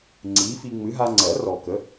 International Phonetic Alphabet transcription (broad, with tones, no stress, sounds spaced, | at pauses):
ŋ͡ǀ iː˨˥ f i˧ ŋ͡m ɨ˨˥ ɦ a˧ ŋ͡ǀ ɜ˨˩˦ r ɔ˨˩ k ə˨˥